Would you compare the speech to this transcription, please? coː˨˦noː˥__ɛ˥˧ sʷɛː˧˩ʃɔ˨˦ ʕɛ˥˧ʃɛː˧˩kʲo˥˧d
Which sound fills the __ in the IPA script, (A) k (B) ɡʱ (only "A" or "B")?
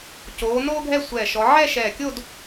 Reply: B